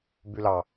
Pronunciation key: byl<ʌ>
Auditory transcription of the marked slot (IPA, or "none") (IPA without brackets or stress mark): ɑ